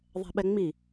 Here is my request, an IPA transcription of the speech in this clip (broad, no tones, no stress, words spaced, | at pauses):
ðˤɛ̤ɓɛŋ͡mi